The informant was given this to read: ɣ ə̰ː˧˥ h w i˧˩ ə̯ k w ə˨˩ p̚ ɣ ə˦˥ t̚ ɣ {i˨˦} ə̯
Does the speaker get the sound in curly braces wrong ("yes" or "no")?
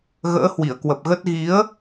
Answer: no